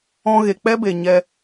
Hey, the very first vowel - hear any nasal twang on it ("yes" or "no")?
yes